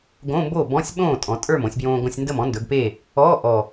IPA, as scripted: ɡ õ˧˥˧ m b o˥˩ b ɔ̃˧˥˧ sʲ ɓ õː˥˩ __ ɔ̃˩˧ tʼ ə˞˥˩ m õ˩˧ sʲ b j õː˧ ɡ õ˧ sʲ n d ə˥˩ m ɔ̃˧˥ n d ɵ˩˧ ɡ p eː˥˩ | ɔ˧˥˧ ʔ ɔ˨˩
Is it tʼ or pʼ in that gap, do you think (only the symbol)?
tʼ